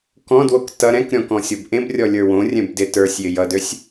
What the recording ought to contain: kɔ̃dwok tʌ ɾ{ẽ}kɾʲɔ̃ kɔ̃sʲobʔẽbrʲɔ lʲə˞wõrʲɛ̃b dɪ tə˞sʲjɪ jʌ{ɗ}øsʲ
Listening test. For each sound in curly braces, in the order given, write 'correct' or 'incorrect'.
incorrect: ɛ̃, incorrect: d

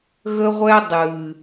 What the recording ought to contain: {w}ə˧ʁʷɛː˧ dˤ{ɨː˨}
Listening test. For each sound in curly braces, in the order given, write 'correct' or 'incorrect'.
incorrect: ɣ, correct

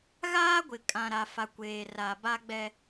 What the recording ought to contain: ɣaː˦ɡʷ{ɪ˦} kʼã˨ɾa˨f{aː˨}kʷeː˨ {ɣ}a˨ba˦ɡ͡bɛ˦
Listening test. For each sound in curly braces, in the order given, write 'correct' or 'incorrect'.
incorrect: ɪ˨, incorrect: a˨, incorrect: r

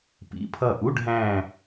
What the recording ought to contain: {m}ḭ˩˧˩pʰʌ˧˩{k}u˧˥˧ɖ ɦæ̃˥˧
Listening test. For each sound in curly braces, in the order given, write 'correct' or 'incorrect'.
incorrect: p, incorrect: ʔ

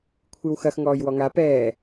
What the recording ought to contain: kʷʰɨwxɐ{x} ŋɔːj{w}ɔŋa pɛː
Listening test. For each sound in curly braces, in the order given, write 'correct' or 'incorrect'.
correct, correct

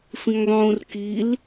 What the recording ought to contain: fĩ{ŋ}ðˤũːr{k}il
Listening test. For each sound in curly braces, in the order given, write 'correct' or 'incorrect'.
correct, correct

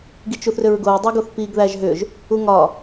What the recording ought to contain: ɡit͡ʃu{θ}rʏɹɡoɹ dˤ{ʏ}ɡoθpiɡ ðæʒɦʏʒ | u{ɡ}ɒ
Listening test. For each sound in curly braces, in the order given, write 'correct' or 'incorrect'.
correct, incorrect: u, incorrect: ŋ

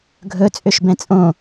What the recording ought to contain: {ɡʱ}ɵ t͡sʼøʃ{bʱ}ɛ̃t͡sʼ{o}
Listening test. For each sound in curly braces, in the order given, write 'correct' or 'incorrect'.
correct, incorrect: b, incorrect: õ

